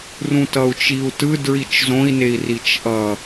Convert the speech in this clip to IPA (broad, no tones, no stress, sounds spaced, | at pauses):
r ũ t ʌ u̯ t͡ʃ i u̯ t ɯ d ɹ i t͡ʃ z õ i̯ n e i̯ r i t͡ʃ ʔ ʌ